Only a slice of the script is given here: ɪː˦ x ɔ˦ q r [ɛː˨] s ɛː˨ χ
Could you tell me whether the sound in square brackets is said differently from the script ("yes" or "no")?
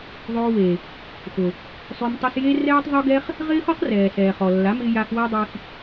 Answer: no